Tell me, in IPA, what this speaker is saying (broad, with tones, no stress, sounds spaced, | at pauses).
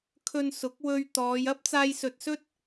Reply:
kʰ ɵ˧ n s ʊ˨˥ k̚ w ɵ˧ ɥ t̪ ɔː˨˧ j ɐ˥ p̚ t͡s aː˧ j s ɵ˨ t̚ s ɵ˥ t̚